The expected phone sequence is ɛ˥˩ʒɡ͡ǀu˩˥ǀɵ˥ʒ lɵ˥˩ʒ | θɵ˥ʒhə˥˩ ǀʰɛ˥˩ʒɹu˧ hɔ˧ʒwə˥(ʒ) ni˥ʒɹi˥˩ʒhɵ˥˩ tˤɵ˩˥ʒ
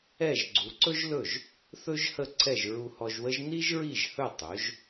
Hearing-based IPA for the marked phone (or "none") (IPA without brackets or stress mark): ʒ